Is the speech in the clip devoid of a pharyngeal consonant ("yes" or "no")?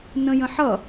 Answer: no